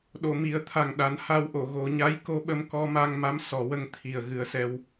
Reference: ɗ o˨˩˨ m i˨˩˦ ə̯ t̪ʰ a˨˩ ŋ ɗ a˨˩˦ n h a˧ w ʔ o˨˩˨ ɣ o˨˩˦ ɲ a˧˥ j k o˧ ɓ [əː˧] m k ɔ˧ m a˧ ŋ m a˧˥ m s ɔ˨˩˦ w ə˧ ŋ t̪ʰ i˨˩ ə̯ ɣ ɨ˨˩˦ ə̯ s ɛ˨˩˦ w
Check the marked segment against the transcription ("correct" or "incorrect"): incorrect